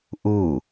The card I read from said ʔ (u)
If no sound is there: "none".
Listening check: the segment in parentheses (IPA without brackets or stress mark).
u